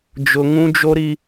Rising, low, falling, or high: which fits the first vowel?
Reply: high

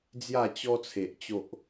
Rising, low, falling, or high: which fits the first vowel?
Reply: falling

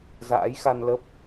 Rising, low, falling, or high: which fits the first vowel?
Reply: rising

